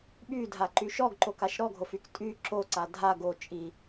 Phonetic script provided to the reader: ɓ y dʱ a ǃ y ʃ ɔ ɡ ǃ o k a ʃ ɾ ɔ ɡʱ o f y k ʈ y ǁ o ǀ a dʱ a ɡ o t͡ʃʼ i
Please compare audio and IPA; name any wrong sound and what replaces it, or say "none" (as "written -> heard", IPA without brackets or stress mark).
ʈ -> tʼ